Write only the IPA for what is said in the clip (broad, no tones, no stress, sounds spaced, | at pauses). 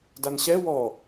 d a n ɕ ɛ w ɔ